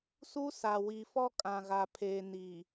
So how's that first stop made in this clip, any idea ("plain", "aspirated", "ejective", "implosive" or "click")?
ejective